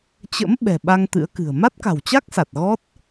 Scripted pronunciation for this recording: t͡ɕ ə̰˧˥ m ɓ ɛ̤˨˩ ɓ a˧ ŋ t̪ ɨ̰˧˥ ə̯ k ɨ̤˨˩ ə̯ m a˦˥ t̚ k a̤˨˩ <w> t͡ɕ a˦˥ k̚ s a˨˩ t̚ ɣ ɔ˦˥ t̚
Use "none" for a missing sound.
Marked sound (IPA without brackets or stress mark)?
w